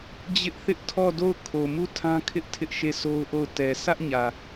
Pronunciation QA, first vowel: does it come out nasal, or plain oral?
oral